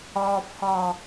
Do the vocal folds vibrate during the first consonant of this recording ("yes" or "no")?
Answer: no